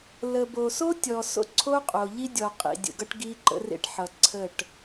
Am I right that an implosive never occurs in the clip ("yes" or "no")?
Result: yes